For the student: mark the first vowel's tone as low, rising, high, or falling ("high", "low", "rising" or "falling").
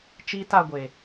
high